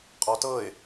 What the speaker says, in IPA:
qʼ ɔ t ɤ ɪ̯

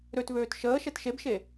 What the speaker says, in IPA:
ɾ ø t v øː t ʃ əː ʃ ɛ t ʃ e b ʃ e

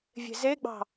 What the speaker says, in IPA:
vʲ e̤ z e ɡ͡b ɑ̤

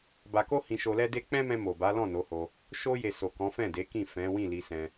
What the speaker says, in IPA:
b a˧ k o˦ h ĩ˧ ʃ o˧ l ɛ˦ d e˦ k͡p ɛ̃˦ m ɛ̃˧ m o˨ b a˨˦ l ɔ̃˦˨ n o˨˦ h o˧ | ʃ o˧ j e˨ s o˨ k ɔ̃˨˦ f ɛ̃˦˨ d e˨˦ k ĩ˦˨ f ɛ̃˨˦ w ĩ˦˨ l i˧ s ɛ̃˧

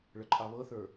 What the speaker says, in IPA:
ɭ ə ǃʼ ɑ β ɤ θ ə˞

